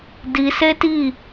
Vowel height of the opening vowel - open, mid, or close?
close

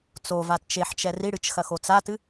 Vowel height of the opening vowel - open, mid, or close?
mid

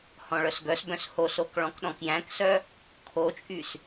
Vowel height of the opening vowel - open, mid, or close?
mid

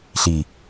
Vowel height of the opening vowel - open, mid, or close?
close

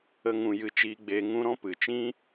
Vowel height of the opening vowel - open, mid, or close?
mid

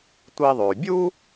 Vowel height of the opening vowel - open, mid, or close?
close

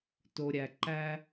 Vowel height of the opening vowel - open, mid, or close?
mid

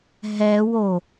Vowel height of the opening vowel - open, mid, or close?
mid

